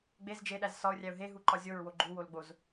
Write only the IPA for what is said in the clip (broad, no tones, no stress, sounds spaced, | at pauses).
ɡ͡b e z d͡ʒ e ɗ æ z s ɒ ʊ̯ rʲ æ ʊ̯ ɦ e ɦ u ǃ ɒ zʲ o ɹ w o ɡ͡ǃ u w o l ɡ͡b o z